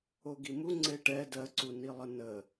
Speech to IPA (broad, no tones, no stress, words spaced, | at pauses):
oɡimu ŋ͡ǀeʈɛ dɜǀunilˠə nə